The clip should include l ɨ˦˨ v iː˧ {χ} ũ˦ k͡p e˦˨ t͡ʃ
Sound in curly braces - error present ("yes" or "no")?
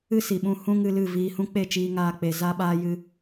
yes